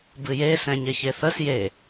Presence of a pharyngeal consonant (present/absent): absent